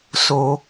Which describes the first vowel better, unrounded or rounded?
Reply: rounded